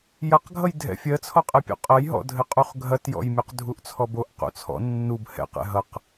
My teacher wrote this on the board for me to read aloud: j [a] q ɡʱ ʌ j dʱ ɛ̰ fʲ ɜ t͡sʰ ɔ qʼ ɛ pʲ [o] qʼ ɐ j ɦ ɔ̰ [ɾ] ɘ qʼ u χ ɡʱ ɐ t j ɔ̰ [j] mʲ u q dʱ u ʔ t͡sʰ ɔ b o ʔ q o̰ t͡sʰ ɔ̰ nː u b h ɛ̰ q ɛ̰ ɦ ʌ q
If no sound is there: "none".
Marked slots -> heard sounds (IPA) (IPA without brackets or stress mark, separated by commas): ɐ, o̰, dʱ, j